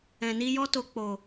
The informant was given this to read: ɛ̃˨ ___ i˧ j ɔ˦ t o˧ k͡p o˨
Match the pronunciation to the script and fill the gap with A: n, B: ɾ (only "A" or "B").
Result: A